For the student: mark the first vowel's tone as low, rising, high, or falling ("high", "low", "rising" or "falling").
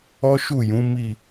high